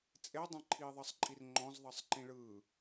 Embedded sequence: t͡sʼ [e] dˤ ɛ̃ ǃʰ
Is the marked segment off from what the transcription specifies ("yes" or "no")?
no